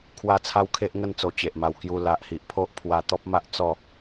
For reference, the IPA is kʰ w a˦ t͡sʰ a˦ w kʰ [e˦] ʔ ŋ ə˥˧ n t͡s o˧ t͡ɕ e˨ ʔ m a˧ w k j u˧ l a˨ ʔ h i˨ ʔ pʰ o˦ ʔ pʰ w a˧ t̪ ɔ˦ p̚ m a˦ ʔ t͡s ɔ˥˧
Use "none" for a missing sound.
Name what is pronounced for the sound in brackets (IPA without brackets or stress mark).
e˦